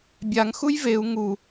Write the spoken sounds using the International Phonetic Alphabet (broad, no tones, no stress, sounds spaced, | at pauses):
bʲ a ŋ x u j v e u̯ ŋ u